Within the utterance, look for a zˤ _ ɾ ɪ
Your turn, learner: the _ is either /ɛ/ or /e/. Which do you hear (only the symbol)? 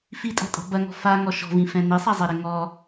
ɛ